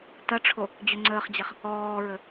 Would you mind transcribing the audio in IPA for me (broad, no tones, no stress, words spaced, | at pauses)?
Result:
tɐʈ͡ʂʰo | d͡ʑøŋ͡ǀəːχd͡ʑɛχ | ɔːɹə